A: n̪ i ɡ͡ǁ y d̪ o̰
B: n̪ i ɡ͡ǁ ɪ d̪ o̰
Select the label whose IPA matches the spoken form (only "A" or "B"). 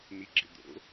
B